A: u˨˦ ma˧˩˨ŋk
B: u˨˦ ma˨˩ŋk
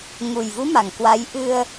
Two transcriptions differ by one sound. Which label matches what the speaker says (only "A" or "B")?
B